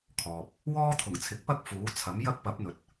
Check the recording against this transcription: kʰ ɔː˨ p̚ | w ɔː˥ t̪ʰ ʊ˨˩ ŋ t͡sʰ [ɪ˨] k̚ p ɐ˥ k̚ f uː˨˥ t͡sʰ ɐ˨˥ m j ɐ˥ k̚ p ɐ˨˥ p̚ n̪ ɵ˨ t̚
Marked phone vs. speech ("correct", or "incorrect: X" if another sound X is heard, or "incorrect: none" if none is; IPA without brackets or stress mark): incorrect: ɪ˨˥